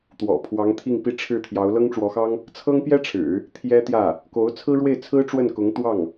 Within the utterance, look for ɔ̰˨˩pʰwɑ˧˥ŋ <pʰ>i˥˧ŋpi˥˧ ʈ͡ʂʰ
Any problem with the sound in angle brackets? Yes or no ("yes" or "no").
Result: yes